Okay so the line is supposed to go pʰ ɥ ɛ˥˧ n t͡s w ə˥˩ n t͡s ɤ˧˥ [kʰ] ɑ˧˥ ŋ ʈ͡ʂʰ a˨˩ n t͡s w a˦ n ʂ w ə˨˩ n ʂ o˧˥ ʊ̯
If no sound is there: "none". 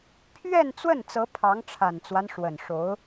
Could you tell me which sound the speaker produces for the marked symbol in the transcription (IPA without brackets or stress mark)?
pʰ